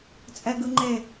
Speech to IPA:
t͡sʼ ɛ ɡ ɯ ŋ͡ǃ e

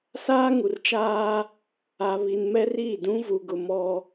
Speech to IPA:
s aː˦ ŋ u˨ r t͡ʃ aː˦ | a˨ β i˨ n m ɛ˦ r iː˦˨ d ũ˦ v u˨ ɡ ʊ˨ m ɔ˦

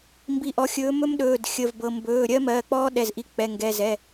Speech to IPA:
m b i˨˥ ʔ ɔ˩˧˩ xʲ ɵː˨˥ m ɵ˦˥ m ɗ ɵː˩˧˩ d xʲ ə˩˧˩ v b ɤ˩˧˩ m b ɵː˩˧˩ ɾʲ ɜ˦˥ m ɜː˩˧˩ k͡p ɔː˦˥ ɗ ɛ˩˧˩ z ʔ i˨˥ k͡p ɛ˩˧˩ ŋ ɡ ɛ˩˧˩ z ɛ˩˧˩

